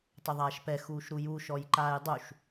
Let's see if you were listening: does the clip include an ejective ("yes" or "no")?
no